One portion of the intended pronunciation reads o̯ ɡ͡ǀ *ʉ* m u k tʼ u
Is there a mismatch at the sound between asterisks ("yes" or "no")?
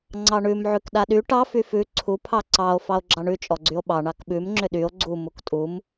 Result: yes